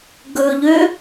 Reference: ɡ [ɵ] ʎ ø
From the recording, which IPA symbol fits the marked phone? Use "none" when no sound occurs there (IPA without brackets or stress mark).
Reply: ɵ